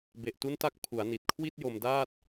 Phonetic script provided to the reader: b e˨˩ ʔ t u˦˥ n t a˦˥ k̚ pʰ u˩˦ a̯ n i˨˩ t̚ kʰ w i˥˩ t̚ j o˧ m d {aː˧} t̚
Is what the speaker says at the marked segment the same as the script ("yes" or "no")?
no